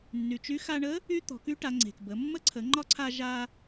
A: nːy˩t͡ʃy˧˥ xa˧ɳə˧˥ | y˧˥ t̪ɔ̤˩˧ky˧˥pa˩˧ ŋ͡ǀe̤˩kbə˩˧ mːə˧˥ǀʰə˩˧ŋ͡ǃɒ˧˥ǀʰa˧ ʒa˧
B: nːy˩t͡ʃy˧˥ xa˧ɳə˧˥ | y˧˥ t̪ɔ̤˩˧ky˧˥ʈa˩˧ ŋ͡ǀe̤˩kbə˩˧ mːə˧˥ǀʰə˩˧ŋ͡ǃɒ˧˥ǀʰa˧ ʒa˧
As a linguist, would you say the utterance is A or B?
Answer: B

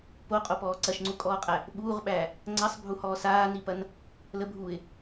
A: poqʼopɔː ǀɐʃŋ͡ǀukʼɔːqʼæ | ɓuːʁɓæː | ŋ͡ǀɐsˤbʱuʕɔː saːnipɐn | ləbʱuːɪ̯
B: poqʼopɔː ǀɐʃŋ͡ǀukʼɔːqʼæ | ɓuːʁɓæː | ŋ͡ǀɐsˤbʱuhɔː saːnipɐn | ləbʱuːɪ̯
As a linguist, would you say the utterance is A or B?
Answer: B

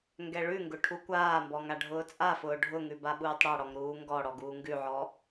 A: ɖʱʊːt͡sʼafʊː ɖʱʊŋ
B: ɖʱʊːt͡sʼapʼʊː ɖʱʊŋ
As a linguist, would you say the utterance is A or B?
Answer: A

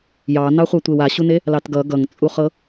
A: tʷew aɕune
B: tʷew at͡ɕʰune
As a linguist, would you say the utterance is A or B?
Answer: A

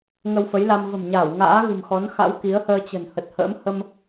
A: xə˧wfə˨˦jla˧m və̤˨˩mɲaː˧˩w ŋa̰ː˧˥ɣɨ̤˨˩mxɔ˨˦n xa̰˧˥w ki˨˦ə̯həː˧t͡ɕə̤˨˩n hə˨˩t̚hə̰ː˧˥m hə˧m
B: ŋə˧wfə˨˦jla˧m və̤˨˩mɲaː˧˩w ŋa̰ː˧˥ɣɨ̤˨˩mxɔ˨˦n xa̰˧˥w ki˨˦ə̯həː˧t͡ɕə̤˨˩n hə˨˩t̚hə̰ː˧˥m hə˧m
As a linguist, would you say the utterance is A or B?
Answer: B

